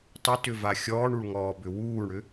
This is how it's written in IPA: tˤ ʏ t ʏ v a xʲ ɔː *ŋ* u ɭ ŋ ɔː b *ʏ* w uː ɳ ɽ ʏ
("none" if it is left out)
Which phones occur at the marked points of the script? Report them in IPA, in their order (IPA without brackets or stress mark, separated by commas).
ɳ, ʏ